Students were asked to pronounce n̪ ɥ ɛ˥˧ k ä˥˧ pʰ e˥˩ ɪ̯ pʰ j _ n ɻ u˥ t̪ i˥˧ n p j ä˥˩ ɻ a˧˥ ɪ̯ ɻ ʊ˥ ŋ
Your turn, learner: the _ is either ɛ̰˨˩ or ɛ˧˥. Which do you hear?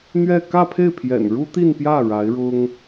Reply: ɛ̰˨˩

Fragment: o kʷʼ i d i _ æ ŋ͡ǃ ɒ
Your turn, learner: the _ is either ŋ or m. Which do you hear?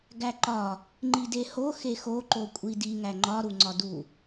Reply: ŋ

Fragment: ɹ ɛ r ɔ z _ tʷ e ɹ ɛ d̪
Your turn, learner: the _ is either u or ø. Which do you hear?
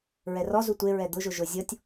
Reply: u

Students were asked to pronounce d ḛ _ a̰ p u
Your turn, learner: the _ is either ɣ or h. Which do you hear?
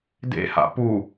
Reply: h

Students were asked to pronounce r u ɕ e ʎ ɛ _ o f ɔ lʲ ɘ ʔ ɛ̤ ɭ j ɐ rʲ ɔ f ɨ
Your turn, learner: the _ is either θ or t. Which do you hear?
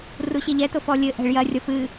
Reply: t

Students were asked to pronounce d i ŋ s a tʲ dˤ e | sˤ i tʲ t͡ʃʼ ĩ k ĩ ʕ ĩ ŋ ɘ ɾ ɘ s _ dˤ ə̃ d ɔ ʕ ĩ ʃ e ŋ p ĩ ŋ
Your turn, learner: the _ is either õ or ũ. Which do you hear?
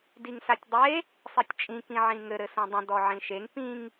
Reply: õ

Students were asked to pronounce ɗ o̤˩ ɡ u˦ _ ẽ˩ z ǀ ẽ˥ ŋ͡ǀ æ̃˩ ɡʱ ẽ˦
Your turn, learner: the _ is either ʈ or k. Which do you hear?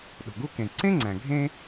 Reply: k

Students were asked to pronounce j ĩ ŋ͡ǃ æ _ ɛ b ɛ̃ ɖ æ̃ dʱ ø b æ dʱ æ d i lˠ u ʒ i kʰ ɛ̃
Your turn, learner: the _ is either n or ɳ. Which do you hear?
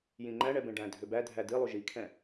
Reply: ɳ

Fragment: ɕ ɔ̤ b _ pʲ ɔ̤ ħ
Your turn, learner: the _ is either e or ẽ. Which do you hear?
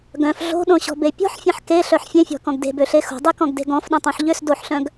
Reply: e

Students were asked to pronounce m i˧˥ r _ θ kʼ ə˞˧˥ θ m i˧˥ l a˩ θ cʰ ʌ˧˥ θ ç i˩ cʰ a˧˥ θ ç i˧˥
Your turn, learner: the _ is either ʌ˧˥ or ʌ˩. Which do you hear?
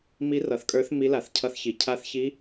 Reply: ʌ˩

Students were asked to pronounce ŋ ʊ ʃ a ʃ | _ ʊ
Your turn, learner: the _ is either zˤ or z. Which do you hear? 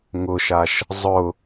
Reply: zˤ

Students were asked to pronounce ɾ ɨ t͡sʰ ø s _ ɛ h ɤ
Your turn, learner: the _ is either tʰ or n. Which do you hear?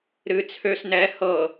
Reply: n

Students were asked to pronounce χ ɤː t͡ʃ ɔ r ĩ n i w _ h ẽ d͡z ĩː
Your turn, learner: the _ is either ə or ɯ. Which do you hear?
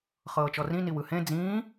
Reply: ɯ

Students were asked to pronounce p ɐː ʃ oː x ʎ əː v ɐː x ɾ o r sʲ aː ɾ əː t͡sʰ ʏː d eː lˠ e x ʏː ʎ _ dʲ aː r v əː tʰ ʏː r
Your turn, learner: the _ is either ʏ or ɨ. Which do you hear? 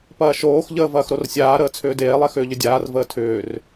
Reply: ʏ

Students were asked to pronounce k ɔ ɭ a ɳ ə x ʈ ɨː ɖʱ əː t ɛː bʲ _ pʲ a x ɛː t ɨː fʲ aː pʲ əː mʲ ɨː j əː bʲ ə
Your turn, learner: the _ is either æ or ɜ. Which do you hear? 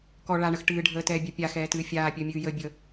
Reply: ɜ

